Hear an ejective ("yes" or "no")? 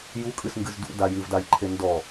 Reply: yes